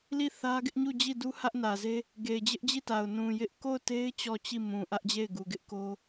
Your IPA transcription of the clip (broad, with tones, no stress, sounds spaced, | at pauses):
l i˦˨ θ ä˦ ɡ ɪ˦ ʔ ɲ u˦˨ d͡ʑ i˦˨ d u˦ h ä˦ ʔ n ä˨ z e˦ | ɡ e˨ ɪ̯ d͡ʑ ɪ˦ ʔ d͡ʑ i˦˨ t a˨ ʊ̯ n ũ˨ j ɪ˦ ʔ k o˦˨ ʊ̯ t e˦ ɪ̯ t͡ɕ ɔ˦˨ t͡ɕ i˦˨ m ũ˨ ʔ ä˦ ʔ d͡ʑ e˦˨ ɪ̯ ɡ u˨ ɡ ɪ˦ ʔ k o˦